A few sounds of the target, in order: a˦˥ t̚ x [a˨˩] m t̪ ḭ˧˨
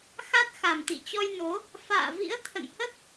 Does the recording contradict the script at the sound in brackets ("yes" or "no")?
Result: no